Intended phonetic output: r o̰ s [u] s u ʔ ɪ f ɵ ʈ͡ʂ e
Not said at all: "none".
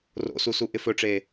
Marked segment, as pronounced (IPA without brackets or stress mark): u